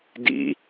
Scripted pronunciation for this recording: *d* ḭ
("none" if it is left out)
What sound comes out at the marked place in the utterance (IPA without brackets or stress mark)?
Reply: d